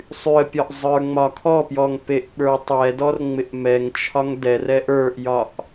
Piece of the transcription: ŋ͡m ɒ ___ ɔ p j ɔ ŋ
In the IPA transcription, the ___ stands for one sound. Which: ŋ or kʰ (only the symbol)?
kʰ